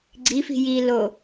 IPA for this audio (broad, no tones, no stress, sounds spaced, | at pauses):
ɡ͡ǀ i f i̤ j i l o